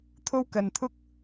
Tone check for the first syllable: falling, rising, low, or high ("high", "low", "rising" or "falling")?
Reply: high